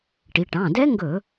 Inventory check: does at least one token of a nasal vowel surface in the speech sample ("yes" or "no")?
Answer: yes